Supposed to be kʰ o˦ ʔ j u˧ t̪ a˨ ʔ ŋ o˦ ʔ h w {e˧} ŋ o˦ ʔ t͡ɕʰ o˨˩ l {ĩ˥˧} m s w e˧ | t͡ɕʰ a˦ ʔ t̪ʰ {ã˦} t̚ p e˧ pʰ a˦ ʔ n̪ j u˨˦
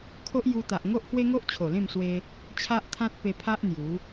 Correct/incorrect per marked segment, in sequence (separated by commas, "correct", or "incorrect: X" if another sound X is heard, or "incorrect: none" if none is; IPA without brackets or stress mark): incorrect: e˦, incorrect: ẽ˥˧, correct